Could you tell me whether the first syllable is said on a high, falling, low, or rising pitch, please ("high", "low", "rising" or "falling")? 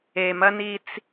low